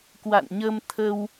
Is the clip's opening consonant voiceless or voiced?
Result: voiceless